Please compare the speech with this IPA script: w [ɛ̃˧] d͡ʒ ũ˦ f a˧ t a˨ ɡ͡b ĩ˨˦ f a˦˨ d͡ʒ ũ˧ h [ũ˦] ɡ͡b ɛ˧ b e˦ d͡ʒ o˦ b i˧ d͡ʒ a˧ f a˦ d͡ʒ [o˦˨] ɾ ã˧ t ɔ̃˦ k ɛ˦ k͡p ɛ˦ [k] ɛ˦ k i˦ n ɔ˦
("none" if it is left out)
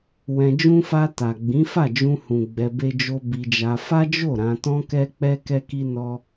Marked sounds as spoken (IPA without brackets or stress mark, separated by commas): ɛ̃˧, ũ˨, o˦˨, k